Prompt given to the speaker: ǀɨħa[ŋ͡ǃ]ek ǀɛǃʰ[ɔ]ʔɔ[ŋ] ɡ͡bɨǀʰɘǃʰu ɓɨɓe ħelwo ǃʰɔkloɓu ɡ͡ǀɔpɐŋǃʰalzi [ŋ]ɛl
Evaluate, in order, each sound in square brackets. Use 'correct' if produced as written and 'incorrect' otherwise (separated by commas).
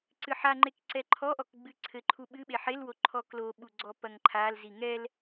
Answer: correct, correct, incorrect, correct